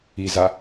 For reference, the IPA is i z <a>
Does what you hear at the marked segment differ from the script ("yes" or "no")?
no